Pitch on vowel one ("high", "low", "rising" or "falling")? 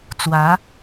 rising